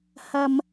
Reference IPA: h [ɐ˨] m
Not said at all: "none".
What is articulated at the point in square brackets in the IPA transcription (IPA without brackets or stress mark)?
ɐ˥